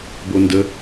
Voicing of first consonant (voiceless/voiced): voiced